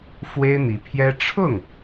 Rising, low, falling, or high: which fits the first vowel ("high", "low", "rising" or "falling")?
high